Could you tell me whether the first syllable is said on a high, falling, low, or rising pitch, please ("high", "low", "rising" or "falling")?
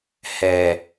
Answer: low